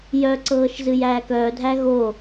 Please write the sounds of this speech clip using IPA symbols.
j œ ǀ ɤː ʃ z ɨ j æː k œː dʱ æ ɣ o

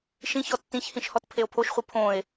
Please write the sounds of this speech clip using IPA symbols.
ʃ ĩ ç ɔ tː ĩ ç h ĩ ʃ h ɔ t pʰ e o̯ pʰ o ʃ χʷ ɨ pʰ õ e̯

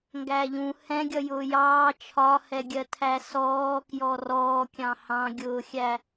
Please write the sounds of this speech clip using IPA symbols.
ŋ ɡ æ ʎ ũ h ɛ̃ ɡʲ ʌ j ʊː j ɑː t͡ʃʰ ɒ h ɛ ɡʲ ɜ tʰ æ s ɔː k j ɔ r ɔː kʲ ɑ̃ h ɑ̃ ɡʲ ʊː xʲ æ

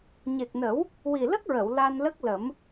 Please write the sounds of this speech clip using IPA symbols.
ɲ e˨˩ k̚ n ə˨˩˦ w | w i˨˩ l ə˦˥ k̚ ɹ ə˨˩˨ w l a˧ n l ə˦˥ k̚ l ə˨˩˦ m

